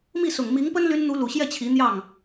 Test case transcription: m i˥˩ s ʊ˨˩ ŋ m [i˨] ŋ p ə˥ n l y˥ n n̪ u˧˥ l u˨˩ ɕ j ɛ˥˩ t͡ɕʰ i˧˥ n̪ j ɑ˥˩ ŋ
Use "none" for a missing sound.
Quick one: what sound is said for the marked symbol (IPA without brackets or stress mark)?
i˧˥